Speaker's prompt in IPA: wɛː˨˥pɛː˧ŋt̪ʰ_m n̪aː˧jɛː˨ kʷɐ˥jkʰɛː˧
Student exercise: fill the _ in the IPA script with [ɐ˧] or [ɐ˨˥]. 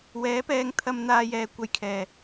ɐ˧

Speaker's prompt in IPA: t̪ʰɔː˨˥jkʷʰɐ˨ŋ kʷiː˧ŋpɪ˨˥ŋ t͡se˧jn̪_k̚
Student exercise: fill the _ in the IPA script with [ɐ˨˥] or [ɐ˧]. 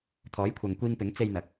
ɐ˨˥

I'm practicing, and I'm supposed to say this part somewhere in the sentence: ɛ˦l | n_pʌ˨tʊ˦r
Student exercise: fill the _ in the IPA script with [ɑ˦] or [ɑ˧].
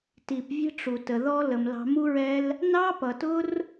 ɑ˦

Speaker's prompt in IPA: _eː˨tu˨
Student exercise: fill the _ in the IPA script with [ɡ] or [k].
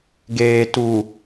ɡ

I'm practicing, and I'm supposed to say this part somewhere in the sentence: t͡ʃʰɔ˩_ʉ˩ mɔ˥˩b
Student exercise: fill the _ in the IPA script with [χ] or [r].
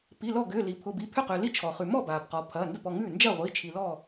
χ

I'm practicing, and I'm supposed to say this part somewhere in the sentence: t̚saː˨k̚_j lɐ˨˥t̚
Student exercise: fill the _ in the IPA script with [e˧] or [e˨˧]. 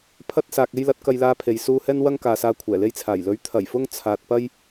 e˧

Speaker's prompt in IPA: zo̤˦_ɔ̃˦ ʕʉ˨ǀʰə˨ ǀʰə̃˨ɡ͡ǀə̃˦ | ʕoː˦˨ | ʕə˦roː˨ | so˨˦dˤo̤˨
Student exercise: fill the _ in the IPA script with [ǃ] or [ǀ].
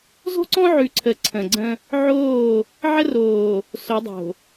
ǀ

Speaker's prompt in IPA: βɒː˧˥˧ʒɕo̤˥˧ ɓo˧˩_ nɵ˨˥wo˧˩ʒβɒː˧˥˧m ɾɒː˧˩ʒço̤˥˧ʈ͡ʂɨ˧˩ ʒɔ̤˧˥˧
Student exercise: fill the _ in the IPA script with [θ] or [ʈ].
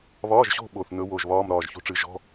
θ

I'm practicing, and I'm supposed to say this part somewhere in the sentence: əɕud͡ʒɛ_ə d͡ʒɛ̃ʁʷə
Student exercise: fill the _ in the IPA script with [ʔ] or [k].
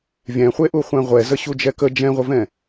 k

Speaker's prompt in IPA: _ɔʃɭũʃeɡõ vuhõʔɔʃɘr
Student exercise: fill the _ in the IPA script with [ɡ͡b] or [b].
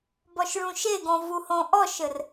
b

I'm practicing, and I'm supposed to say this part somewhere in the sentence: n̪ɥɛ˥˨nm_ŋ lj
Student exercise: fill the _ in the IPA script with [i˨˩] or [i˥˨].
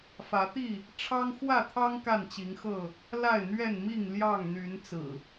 i˥˨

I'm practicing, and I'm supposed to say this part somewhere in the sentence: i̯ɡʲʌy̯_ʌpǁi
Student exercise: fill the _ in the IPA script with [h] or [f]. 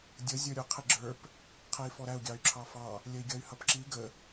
h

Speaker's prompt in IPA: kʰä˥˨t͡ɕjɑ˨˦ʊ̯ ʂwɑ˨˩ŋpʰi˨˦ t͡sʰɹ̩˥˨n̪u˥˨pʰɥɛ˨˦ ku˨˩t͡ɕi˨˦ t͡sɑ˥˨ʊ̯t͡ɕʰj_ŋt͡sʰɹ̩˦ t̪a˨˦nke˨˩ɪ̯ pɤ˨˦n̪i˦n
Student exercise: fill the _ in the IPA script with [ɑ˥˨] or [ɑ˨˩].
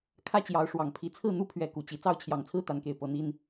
ɑ˨˩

